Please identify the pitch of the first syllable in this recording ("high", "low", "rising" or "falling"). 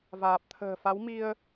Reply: low